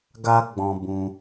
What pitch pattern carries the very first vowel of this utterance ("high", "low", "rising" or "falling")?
high